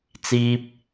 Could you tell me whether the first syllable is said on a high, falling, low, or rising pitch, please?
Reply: high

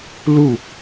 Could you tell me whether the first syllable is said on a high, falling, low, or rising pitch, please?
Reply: falling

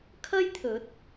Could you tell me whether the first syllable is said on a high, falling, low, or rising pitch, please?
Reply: high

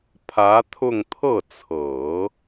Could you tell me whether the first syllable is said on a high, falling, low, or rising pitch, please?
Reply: rising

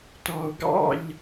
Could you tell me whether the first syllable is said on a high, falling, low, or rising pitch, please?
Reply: low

